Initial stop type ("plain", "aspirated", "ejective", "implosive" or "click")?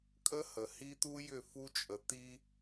ejective